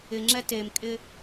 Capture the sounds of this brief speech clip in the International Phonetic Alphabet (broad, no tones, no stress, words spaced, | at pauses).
ɪŋ͡ǁɛ temkʼɪ